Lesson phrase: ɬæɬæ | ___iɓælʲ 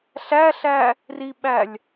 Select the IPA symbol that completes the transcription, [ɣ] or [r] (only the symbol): r